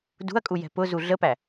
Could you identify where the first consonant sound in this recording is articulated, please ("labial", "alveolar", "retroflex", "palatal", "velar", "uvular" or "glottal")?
alveolar